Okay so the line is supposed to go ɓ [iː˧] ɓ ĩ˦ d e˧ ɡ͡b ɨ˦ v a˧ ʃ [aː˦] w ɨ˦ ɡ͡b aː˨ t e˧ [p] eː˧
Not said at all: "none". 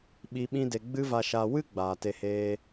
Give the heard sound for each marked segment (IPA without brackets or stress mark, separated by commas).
i˧, aː˧, h